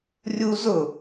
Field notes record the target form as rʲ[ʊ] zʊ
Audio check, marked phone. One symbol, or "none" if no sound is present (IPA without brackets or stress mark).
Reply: u